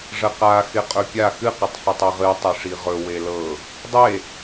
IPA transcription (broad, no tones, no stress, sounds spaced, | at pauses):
ʐ ə q a x ɪ qʼ ɵ pʲ a x ɨ q ə tˤ ħ ɪ tˤ ɨ ʁ ɨ tˤ ɨ ʂ i ʁ ɵ w e l ɤ | dˤ e